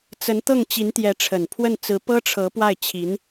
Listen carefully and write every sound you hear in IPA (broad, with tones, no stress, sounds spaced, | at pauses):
t͡s ə˧˥ n t̪ ɤ˥˩ ŋ t͡ɕ i˧˥ n t̪ j ɛ˧˥ ʈ͡ʂʰ ə˨˩ n pʰ w ə˥˩ n t͡s ɹ̩˧˥ p ɤ˥ ʈ͡ʂʰ ɤ˧˥ p w a˥˩ ɪ̯ t͡ɕʰ i˧˥ n